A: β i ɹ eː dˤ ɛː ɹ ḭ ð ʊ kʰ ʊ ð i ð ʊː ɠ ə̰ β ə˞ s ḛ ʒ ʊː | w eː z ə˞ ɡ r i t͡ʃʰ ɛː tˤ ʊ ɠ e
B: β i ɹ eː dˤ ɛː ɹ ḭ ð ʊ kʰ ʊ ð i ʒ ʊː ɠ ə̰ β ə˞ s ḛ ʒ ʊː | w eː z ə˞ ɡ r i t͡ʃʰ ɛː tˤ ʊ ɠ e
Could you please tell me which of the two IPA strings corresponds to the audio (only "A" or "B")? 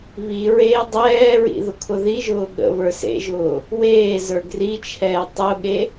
B